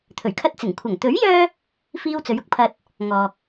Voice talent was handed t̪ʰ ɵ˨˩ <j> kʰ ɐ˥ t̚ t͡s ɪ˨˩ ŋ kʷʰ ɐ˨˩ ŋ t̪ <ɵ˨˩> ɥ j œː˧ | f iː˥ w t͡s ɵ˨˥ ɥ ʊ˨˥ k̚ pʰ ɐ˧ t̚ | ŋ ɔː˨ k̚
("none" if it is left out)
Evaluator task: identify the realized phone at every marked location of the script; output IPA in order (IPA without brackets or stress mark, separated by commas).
ɥ, ɵ˨˥